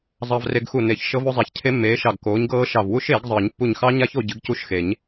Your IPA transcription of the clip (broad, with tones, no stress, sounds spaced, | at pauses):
zˤ ɑ˧ v r e˧ ɡ x u˧˩ n e˨˩˦ ç ʃ ɤ˦˥ v o˦˥ zˤ a˨˥ ç cʰ e˦˥ mː eː˨˥ ʃ ɑ˧˩ ɡ k oː˨˥ ɲ ɡ ɤː˦˥ ʃ ɑ˧˩ v w u˦˥ ʃ eː˨˩˦ ɡ zˤ ɤː˨˩˦ ɲ pː u˧˩ ɲ x ɑ˦˥ ɲ a˦˥ ç o˧ ɟ ɨ˨˥ ɡ c u˦˥ ʃ x e˨˩˦ ɲ